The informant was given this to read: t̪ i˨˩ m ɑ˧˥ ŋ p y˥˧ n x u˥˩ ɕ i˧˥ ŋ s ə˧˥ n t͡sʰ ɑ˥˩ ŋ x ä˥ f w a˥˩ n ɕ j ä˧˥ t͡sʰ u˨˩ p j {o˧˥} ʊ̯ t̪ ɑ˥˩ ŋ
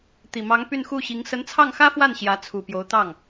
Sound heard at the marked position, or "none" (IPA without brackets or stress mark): o˧˥